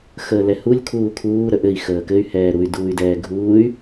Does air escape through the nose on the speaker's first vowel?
no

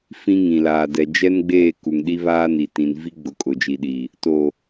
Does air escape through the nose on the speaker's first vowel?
yes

